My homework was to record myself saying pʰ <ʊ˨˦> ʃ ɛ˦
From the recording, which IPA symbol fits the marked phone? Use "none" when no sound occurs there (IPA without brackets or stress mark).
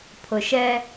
ʊ˨